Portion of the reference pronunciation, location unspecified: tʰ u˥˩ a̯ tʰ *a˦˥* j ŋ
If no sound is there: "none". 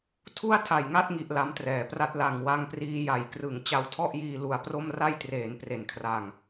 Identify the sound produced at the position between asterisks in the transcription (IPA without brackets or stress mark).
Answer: a˨˩